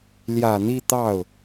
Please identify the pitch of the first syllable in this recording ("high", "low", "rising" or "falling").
low